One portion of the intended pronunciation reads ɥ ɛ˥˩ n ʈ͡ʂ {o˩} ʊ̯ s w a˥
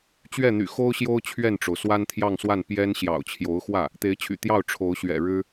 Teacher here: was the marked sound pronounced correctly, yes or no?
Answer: yes